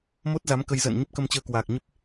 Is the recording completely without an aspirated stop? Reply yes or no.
yes